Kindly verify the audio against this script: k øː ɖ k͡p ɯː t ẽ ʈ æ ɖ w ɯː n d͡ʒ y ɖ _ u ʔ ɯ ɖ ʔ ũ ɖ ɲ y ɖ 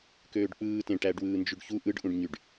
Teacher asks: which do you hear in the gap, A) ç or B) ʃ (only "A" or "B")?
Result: A